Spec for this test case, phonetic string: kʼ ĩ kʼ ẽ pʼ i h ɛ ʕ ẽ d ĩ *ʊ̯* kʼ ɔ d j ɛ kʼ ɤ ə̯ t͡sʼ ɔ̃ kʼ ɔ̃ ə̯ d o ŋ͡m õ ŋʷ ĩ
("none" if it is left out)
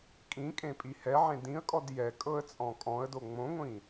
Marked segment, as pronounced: ə̯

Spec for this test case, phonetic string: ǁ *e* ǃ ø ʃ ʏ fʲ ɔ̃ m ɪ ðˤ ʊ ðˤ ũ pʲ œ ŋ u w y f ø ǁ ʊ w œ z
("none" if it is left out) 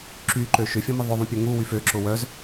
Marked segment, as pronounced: y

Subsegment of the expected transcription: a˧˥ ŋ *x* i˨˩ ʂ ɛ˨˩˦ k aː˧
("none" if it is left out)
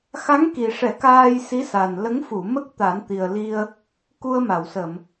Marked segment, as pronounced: k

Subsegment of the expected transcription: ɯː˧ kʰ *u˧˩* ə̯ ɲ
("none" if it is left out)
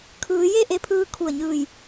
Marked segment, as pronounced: u˧˩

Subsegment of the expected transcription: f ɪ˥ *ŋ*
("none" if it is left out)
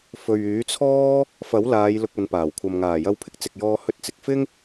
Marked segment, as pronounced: ŋ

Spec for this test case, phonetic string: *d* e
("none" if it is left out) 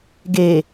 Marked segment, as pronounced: ɡ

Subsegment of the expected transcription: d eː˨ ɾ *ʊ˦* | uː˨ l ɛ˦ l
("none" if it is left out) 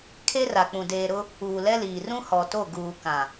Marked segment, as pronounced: ʊ˦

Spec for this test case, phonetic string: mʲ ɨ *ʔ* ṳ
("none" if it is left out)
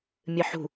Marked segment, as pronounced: ħ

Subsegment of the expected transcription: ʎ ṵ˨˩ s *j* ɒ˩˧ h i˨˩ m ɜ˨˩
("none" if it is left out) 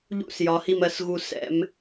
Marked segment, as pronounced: j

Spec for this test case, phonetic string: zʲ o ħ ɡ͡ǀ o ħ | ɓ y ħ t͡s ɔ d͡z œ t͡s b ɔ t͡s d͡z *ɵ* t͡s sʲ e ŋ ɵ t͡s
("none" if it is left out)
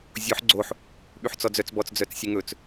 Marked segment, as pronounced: œ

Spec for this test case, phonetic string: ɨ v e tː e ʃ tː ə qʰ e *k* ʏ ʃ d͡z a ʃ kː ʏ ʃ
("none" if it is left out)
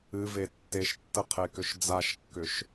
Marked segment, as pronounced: k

